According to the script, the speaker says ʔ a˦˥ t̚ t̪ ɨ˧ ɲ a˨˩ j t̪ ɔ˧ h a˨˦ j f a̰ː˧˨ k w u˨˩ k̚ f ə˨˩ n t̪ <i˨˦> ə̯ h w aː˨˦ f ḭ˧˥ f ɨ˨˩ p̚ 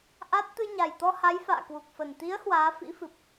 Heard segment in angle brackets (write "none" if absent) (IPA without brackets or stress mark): i˨˦